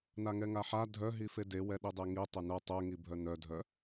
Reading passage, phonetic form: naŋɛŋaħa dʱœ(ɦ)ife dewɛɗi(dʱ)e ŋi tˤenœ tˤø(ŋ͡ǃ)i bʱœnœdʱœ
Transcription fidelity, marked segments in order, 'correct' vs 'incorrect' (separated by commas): correct, incorrect, incorrect